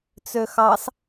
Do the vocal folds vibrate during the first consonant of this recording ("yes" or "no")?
no